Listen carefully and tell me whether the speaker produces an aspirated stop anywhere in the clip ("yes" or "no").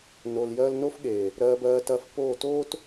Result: no